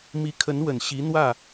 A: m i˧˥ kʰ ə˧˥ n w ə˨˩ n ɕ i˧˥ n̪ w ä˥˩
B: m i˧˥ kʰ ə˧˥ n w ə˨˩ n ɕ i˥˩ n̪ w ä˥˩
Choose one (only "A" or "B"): A